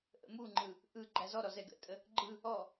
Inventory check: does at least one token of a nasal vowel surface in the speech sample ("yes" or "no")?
no